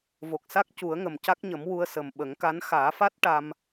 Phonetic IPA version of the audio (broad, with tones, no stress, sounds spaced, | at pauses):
v o˨˩ k̚ s a˦˥ k̚ c u˨˩˦ ə̯ ŋ ə˨˩ m c a˦˥ k̚ ɲ ə˨˩˦ m w u˧ ə̯ s ə˨˩ m ɓ ə˨˩˦ ŋ k a˧˥ n x aː˨˩˦ f a˦˥ t̚ ʈ a˧ m